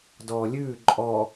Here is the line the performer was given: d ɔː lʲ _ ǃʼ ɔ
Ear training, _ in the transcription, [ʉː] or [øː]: ʉː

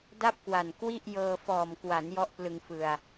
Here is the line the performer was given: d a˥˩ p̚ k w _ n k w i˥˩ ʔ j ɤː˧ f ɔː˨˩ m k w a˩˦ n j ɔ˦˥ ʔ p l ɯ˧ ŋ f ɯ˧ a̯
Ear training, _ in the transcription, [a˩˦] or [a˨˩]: a˨˩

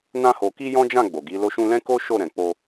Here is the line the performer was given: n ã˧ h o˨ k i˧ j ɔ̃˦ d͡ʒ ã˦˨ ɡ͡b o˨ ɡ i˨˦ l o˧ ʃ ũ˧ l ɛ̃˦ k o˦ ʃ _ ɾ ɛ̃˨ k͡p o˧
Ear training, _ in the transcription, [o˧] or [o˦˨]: o˦˨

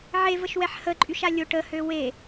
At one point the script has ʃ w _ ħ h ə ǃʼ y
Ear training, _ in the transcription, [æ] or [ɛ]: ɛ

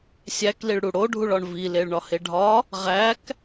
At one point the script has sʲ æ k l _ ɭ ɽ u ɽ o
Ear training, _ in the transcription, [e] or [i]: i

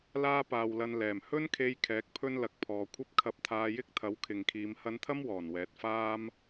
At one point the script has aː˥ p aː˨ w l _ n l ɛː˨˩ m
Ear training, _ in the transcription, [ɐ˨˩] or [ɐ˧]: ɐ˧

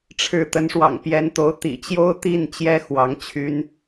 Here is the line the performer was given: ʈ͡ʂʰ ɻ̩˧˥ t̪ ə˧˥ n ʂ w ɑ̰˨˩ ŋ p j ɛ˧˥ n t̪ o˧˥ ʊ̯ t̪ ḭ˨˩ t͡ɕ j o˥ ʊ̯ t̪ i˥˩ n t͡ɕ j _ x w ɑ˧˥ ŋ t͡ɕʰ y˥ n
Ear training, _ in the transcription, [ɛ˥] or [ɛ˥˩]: ɛ˥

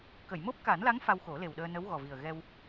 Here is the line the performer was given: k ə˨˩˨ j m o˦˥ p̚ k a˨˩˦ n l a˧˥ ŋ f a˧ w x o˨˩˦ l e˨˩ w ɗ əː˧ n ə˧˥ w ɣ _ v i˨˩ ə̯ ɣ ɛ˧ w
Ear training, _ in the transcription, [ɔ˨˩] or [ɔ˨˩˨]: ɔ˨˩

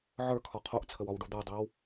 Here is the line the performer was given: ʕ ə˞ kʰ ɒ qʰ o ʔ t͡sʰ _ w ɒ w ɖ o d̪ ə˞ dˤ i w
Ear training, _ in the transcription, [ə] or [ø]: ə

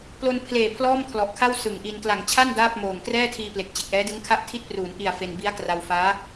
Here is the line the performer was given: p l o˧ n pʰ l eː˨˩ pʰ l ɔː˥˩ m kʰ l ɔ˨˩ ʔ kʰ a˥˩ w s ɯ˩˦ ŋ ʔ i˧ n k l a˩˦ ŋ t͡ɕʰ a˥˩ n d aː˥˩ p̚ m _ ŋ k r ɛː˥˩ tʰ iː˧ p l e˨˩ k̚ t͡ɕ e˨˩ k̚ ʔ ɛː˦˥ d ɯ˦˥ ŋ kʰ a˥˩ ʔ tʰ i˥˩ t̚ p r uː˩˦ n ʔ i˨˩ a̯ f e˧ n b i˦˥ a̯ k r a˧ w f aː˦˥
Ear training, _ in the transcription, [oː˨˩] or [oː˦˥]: oː˨˩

